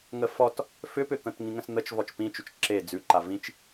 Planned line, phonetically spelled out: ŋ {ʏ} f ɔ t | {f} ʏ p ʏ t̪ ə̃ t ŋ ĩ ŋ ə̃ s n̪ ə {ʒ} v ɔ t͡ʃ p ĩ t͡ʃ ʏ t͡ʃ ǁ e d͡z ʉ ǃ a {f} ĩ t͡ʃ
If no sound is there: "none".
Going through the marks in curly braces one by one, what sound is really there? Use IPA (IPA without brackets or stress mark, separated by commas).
ə, f, t͡ʃ, v